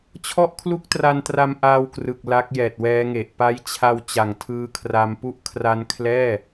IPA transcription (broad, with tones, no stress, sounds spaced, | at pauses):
t͡ɕʰ ɔ˥˩ ʔ kʰ l u˥˩ k̚ t r a˧ n t r a˧ m ʔ aː˧ w k r ɯ˨˩ k̚ l a˦˥ k̚ j ɛː˨˩ t̚ w ɛː˦˥ ŋ e˨˩ ʔ p a˦˥ j t͡ɕʰ a˧ w t͡ɕ a˨˩ ŋ tʰ ɯː˧ kʰ r a˧ m p u˦˥ ʔ kʰ r a˦˥ n kʰ l ɛː˥˩